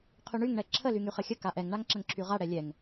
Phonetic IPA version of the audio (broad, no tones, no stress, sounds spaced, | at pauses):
qʰ y ɳ y ŋ ɳ ɛ ǁʰ ə l y ŋ y χ ə xʲ ə k a ʔ ɛ ŋ ɳ a ŋ ǁ ə ŋ ǁʰ y ʁ a ɽ ɛ lʲ ɛ ŋ